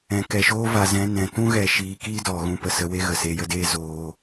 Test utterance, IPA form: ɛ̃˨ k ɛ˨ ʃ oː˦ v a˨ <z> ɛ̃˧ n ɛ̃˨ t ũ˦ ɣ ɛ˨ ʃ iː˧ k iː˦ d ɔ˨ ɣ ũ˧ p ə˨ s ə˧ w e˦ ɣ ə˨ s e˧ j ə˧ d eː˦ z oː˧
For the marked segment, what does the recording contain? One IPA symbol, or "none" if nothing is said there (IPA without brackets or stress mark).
z